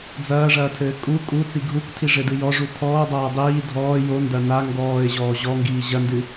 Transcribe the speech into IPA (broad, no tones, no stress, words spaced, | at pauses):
d͡zɐːʐɐːtʰɘː kʼu kʼut͡si ɡʱuktʰiʐɘdɨ jɔʐu tʰɔːdˤɐː dˤiː dʱɔː jondɐ na ŋɡɔːɪ̯ʑɔː ʑɔŋɡiː ʑɐndɨ